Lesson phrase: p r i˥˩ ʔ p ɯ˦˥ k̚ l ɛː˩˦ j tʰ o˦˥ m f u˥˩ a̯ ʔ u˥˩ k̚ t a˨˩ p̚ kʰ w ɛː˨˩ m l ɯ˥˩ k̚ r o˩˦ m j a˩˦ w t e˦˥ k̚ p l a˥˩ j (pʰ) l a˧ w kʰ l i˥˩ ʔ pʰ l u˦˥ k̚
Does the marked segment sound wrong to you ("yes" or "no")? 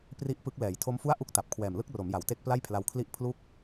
no